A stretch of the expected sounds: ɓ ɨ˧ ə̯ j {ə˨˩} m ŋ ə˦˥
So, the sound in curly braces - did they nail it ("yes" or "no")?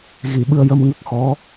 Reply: no